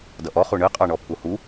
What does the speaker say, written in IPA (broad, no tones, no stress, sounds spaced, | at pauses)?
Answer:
d ʌ ʔ ɔ χ u ɳ ɨ qʼ ɑ ɳ ɔ pʰ u h u